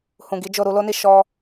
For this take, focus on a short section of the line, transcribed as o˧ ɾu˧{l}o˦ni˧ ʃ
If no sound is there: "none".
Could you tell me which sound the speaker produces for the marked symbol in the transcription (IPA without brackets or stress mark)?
l